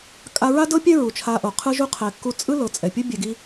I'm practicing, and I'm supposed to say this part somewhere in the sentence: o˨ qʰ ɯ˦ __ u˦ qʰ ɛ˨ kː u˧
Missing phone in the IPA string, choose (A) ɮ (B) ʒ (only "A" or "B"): B